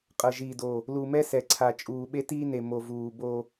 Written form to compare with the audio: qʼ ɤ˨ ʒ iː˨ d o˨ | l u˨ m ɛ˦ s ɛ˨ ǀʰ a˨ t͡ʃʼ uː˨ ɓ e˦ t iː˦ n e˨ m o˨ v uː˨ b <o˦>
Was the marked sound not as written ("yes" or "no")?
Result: no